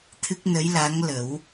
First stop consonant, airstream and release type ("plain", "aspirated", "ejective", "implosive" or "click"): aspirated